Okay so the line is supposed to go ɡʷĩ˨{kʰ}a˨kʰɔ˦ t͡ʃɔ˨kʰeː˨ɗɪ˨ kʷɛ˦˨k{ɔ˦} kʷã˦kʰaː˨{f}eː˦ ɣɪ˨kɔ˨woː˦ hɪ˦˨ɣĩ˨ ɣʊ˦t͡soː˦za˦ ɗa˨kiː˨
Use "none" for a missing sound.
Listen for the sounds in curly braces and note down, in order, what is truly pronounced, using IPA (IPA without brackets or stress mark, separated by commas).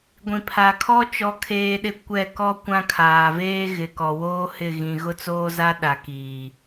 pʰ, ɔ˦, v